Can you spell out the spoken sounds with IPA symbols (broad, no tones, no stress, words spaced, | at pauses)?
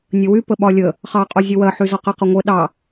nʲəwy pəɓɒlʲə | χɑ qʼozʲəwɜ ħyzɒqə qəŋʷə ɗɑ